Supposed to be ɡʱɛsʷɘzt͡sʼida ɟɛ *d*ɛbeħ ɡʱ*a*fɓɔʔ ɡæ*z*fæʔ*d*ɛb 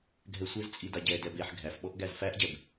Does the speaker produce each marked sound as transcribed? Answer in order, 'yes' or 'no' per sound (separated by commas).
yes, no, yes, no